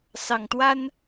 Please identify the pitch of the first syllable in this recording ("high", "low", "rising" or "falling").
low